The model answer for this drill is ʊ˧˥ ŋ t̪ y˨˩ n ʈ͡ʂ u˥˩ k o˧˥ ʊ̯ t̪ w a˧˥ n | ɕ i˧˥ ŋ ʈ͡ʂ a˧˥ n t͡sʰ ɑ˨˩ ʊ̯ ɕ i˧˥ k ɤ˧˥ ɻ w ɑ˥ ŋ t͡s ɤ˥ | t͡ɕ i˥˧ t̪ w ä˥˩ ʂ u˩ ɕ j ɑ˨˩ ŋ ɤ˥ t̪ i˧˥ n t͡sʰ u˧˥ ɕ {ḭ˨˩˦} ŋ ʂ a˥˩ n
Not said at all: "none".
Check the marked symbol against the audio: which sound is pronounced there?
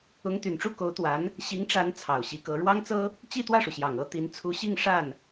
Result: i˥˧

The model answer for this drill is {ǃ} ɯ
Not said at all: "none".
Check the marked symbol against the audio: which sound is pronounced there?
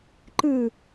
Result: ǃ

